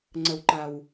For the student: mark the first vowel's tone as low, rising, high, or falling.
low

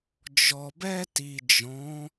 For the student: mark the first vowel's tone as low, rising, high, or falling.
low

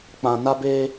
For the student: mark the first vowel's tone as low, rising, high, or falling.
low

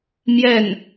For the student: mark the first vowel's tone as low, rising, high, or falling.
falling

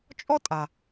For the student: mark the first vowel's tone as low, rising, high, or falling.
high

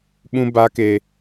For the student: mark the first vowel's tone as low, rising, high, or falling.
high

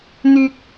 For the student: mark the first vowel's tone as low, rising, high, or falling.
high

